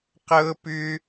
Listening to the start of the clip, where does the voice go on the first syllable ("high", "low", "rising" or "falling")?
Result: high